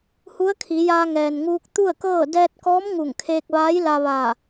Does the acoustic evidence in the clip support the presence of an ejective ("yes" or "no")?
no